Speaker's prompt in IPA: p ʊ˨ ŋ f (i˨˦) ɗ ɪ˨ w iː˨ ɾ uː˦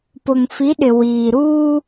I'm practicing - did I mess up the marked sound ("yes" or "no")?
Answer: no